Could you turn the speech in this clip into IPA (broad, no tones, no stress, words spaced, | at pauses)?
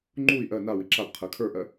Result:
ŋ͡ǃui̯ ʔɜ na wiǁab qʰɜkʰə˞ʔɜ